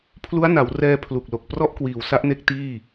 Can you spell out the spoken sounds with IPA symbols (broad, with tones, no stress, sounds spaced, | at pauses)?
pʰ l u˦˥ a̯ n a˩˦ w r ɛː˧ pʰ l u˨˩ k̚ l o˨˩ k̚ p r ɔ˥˩ ʔ k w iː˨˩ w s a˦˥ ʔ n e˦˥ k̚ t iː˥˩